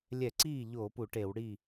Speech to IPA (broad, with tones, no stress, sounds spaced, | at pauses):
lʲ ɛ˧˩˧ ǀ iː˥˩ ʎ oː˧˩˧ p u˧˩˧ ʈ e˧˩˧ w ɽ i˥˩